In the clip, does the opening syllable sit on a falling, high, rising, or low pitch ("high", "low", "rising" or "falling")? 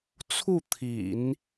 falling